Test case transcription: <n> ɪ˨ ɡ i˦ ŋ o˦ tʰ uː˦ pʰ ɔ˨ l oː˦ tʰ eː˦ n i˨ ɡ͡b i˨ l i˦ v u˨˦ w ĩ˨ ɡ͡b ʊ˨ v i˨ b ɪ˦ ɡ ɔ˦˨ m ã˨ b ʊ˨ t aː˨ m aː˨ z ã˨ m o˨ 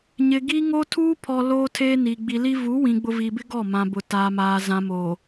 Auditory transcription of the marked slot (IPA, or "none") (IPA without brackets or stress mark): ɲ